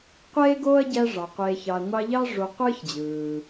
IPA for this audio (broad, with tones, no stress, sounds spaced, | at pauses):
qʷ eː˥ ɡ oː˥ ɐ̯ ɟ æ˦ ʐ ɑ˩ qʷ eː˨ ç ɑ˨ ɐ̯ ŋʷ ɑ˦ ʎ ɑ˥ ʐ o˨ qʷ ɯː˥ ç d͡ʑ ɯː˩